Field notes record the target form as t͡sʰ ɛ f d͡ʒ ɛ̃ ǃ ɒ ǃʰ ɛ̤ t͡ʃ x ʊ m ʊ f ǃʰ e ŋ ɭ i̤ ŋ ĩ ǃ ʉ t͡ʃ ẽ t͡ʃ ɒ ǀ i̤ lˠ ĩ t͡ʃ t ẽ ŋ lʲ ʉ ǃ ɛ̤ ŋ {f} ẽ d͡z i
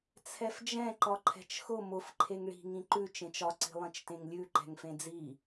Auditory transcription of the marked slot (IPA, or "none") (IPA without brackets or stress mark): f